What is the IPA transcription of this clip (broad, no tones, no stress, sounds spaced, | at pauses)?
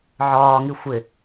ʕ ɒː ŋ i xʷ ɪ